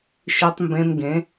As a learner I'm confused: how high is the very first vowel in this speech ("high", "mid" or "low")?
high